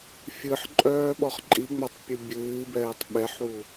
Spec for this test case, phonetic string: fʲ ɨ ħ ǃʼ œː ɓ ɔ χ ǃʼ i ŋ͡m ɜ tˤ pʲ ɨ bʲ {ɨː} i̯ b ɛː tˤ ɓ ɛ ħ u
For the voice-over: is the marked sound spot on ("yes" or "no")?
yes